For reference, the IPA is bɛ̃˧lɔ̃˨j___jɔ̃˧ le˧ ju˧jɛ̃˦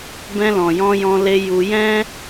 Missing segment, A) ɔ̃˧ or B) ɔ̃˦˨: A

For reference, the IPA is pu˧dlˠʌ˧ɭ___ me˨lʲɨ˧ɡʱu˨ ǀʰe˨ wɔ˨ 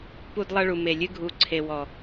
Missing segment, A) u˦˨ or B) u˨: B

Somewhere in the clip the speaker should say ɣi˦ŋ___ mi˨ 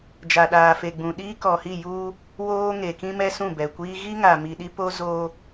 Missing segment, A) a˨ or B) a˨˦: A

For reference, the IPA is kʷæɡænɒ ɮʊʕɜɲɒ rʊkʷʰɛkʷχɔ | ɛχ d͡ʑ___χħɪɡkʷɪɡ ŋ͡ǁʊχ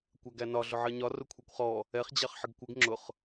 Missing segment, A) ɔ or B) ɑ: B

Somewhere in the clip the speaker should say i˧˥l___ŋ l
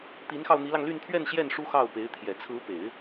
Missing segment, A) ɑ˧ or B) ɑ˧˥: A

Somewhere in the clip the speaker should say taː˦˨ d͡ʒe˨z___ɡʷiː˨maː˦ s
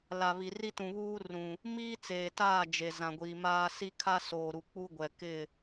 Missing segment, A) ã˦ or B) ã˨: B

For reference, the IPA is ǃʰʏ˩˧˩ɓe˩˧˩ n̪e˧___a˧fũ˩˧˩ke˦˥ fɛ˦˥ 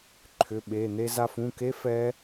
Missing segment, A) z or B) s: A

